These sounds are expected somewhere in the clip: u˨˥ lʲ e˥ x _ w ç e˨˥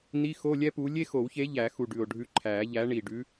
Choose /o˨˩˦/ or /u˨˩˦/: o˨˩˦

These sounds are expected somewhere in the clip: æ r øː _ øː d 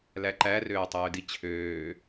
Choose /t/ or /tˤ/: tˤ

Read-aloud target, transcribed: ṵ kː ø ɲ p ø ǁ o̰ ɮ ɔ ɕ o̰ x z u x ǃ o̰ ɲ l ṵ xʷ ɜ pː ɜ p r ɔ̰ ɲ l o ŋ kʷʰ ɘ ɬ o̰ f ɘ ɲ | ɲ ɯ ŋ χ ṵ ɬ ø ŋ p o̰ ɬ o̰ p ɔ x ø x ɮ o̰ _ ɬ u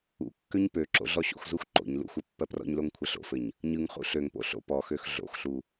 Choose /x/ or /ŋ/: x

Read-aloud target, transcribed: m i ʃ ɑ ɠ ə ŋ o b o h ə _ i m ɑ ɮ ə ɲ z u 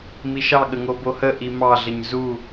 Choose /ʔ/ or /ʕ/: ʔ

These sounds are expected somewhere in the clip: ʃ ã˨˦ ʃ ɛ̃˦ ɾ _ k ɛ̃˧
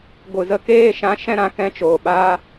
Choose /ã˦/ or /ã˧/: ã˧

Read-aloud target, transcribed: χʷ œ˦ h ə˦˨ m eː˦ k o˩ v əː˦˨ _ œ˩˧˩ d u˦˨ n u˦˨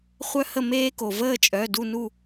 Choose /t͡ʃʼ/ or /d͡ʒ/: t͡ʃʼ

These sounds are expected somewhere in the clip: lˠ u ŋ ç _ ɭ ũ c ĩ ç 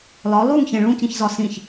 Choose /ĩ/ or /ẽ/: ẽ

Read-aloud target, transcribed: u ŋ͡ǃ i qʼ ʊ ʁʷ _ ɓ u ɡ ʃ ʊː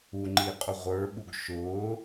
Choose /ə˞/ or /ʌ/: ə˞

